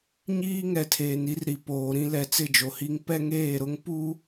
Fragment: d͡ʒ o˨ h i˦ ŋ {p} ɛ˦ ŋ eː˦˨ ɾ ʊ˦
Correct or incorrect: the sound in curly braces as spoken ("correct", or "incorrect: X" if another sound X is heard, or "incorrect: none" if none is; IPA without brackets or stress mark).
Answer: correct